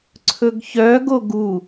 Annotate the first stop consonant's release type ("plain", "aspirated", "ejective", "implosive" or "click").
click